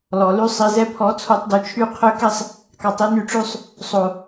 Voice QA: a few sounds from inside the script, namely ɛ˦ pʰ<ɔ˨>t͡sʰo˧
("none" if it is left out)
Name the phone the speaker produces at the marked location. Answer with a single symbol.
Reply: ɔ˨˦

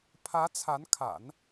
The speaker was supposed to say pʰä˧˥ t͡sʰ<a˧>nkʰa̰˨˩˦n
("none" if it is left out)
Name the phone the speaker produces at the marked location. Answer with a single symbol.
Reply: a˧˥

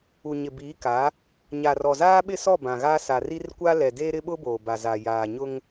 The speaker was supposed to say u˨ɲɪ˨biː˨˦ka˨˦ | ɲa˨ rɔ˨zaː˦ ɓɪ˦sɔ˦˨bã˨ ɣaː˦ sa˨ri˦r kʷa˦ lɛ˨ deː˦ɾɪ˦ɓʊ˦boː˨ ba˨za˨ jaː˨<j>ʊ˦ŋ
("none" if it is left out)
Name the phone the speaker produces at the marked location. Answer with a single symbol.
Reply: ɲ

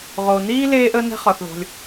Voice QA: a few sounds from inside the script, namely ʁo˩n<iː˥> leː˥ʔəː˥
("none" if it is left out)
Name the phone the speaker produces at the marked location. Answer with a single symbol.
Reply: iː˥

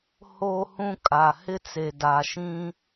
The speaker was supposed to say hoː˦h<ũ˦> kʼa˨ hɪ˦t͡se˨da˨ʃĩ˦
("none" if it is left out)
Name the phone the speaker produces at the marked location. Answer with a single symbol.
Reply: ũ˦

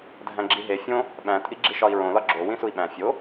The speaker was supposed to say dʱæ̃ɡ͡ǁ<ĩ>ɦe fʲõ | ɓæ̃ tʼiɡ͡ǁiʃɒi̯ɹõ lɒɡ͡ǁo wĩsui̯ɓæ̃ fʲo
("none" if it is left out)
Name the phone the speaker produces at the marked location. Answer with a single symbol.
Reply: i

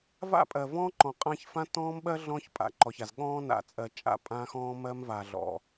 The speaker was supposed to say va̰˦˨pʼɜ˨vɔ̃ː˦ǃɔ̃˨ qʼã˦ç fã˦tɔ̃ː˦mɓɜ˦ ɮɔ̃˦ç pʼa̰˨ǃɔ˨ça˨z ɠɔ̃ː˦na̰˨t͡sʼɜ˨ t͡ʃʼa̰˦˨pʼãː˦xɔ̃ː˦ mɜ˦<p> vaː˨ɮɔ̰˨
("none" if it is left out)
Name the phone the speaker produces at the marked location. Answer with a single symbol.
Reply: m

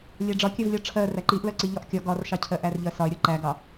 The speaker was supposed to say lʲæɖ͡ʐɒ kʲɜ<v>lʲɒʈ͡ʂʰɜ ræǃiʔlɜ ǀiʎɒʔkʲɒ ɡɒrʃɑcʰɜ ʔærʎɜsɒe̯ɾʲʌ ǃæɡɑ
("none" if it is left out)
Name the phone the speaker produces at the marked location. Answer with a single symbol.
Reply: v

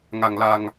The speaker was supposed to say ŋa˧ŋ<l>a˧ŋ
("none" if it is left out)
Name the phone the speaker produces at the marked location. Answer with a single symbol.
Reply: l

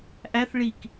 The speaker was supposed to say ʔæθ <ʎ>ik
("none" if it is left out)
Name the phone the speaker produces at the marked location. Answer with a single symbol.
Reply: ɭ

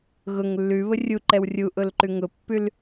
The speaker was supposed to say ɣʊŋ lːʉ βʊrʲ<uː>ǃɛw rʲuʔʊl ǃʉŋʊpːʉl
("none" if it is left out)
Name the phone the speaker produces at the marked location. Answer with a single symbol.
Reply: u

